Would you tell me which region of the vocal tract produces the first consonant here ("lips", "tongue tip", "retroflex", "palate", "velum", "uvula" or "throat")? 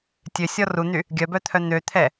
tongue tip